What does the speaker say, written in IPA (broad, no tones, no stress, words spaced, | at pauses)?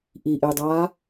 ʔiʔedˤaː